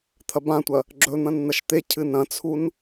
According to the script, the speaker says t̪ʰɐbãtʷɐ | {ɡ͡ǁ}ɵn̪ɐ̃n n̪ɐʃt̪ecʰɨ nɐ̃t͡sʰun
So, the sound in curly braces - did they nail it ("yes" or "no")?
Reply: yes